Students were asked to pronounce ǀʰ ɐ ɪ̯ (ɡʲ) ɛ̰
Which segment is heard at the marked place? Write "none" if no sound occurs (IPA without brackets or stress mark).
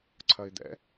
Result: d̪